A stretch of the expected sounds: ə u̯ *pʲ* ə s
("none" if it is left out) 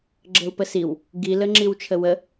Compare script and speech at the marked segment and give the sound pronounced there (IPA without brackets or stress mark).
p